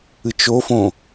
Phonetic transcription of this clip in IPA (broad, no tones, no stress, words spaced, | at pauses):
ɨt͡ʃofõ